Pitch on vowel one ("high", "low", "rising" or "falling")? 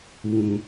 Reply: low